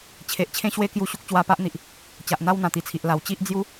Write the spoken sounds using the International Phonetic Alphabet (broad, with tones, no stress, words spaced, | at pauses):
t͡ɕʰe˨ʔt͡ɕʰẽ˦ɕwe˦kju˧ ɕu˦k̚t͡ɕwa˧pa˦ʔn̪i˨ʔ | t͡ɕa˨ʔn̪a˦wn̪ã˨˩ t̪i˨˩t͡sʰi˨ʔ la˨˩w t͡ɕi˦ʔ d͡zju˦